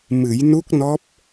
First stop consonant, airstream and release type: plain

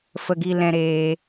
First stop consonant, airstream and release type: plain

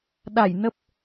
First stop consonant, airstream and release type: implosive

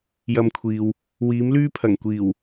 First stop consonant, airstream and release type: aspirated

